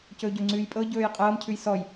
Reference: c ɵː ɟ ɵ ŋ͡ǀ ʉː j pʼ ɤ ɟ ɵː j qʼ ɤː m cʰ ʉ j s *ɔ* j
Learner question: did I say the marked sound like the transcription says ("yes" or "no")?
yes